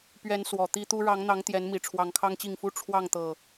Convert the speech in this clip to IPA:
p ɥ ɛ˨˦ n s w ɔ˨˩ t̪ i˦ t̪ u˦ ɻ ɑ˨˦ ŋ n̪ ɑ˨˦ ŋ t̪ j ɛ˨˦ n m i˨˩ ʈ͡ʂʰ w ɑ˨˦ ŋ kʰ ɑ˦ ŋ t͡ɕ i˥˨ ŋ f u˦ ʈ͡ʂʰ w ɑ˥˨ ŋ t̪ ɤ˨˩

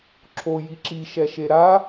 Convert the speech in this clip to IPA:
ǁʰ o j i ǁ i ʃ ɛ ʃ e ɾ a

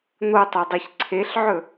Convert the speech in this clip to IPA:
n̪ o tˤ o dˤ e ç ǀʰ e ɬ ʕ ɵ

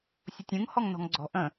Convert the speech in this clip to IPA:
sʲ ʊ tʲ ũ ŋ h ɔ ŋ n ɔ̤ ŋ ɡ͡ǀ ɔ̤ ʔ ə̃

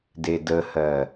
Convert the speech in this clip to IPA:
d e d ə h ɜ

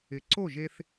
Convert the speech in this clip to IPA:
ɪ˩˥ ǀ o˥˩ ʒ e˧ θ

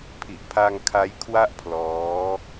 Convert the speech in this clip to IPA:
pʰ i˨˩ ʔ pʰ a˧ ŋ kʰ a˦˥ j kʰ w a˥˩ ʔ pʰ l ɔː˦˥

